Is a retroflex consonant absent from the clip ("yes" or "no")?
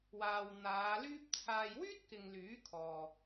yes